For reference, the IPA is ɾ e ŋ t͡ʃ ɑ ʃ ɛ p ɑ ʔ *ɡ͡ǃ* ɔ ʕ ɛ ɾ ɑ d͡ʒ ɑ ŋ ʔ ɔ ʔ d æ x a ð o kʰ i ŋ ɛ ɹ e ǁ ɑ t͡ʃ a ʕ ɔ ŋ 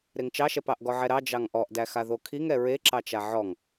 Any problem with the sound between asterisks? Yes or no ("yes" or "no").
yes